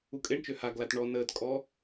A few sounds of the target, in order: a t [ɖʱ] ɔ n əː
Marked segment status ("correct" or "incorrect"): incorrect